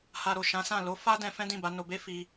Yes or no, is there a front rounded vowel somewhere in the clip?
no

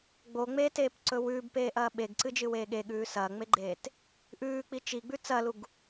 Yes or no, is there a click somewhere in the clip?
yes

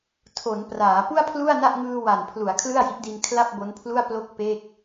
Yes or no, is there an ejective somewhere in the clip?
no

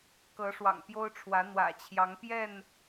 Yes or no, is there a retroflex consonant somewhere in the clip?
yes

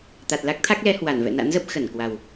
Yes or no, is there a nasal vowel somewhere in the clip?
no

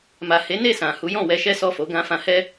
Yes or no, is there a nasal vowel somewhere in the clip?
yes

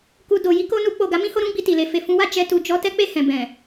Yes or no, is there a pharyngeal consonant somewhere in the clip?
no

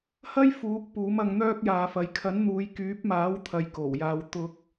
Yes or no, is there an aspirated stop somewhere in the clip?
yes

